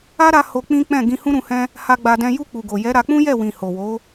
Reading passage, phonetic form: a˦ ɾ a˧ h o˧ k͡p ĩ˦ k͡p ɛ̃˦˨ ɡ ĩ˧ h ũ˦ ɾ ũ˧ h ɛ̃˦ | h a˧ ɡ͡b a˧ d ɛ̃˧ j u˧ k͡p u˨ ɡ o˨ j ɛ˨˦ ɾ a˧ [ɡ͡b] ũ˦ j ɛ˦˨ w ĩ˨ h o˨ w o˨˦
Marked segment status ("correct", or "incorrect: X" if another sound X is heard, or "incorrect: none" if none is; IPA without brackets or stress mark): incorrect: k͡p